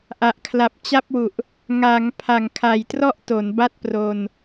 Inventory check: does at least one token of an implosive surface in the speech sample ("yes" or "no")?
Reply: no